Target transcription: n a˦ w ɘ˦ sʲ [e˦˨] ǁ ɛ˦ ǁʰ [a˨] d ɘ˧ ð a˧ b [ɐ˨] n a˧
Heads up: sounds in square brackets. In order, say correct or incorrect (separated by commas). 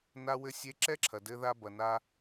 incorrect, incorrect, correct